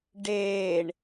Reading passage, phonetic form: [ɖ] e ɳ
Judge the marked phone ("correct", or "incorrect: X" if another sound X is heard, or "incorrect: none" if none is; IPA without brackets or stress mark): correct